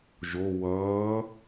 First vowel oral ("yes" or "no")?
yes